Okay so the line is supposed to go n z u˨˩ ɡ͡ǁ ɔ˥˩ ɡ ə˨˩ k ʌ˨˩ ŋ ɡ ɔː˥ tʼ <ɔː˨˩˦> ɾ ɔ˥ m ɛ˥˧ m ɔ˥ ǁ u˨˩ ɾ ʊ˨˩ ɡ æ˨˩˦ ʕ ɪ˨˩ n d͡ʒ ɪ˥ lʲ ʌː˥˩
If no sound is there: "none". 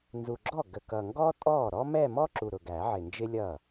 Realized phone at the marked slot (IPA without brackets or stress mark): ɔː˥˩